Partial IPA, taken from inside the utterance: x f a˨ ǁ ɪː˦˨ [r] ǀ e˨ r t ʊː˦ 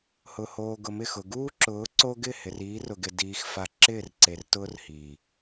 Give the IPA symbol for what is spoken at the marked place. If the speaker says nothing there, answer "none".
r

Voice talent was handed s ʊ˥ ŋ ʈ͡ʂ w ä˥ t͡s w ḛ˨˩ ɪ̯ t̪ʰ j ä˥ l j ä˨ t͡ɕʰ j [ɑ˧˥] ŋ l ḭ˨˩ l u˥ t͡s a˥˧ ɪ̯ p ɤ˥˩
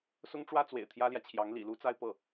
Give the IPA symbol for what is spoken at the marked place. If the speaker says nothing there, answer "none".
ɑ˧˥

